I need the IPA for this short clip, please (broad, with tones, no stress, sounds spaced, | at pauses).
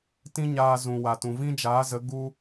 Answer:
t ĩ˦ ɲ aː˧ z ũ˨ w a˨ t ũ˨ v ĩ˦ d͡ʒ aː˨˦ z ə˨˦ ɡ u˦